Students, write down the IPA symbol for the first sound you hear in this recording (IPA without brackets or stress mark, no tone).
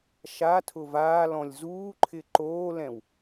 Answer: ʃ